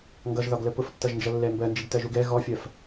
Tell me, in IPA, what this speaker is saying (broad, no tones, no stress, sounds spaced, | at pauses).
ŋ ɡ ʌ ʒ ð ɒ ɡ l ə p ʊ f tː ʌ ʒ n d͡ʒ ʌ lː ɛ m b ɜ n d͡ʒ i ɡ t ɜ ʒ u ɡ ɛ ɣ ɔ fʲ ɜ f